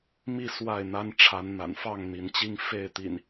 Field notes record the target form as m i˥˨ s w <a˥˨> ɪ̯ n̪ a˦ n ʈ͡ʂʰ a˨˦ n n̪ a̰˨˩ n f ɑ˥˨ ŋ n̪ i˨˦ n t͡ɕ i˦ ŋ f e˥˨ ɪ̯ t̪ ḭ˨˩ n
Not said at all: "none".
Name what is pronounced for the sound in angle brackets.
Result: a˥˨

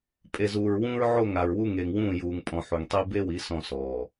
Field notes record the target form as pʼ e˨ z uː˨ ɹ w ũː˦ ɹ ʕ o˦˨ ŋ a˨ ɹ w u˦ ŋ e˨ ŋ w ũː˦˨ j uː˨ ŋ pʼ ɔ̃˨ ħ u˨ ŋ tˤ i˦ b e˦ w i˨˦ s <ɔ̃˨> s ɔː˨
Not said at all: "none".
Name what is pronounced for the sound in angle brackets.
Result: ɔ̃˨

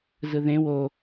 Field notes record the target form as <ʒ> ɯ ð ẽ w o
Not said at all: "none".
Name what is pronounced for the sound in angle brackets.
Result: z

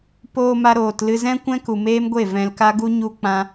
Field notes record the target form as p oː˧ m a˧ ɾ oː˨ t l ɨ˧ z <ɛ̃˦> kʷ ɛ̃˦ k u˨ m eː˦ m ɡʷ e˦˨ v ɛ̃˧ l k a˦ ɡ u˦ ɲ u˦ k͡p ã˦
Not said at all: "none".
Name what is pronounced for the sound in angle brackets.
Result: ɛ̃˦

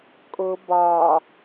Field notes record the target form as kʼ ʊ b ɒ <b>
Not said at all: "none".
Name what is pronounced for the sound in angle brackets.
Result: none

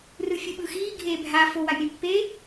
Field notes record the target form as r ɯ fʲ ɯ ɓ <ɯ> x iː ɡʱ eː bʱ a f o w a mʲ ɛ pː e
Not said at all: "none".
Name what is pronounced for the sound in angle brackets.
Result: ɯ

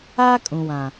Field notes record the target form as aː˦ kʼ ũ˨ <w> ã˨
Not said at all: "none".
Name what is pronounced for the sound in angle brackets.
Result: w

